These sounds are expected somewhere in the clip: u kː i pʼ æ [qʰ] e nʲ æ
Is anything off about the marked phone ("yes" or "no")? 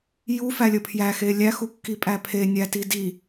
yes